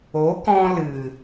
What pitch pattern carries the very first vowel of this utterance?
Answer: rising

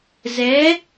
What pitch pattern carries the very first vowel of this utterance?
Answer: rising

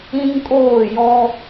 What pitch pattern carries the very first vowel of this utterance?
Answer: high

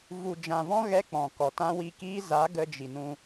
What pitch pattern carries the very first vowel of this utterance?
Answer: low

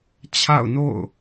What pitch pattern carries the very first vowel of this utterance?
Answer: falling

